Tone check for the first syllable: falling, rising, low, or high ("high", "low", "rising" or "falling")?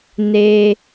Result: high